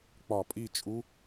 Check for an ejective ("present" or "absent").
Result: present